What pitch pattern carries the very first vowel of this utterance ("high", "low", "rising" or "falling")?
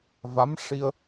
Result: rising